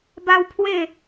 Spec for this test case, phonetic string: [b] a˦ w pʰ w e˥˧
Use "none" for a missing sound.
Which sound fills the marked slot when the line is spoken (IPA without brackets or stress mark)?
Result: b